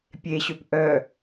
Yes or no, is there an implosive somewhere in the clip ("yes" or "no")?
no